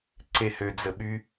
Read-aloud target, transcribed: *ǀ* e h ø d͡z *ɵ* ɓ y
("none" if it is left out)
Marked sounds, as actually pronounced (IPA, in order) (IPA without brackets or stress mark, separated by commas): ǀ, ə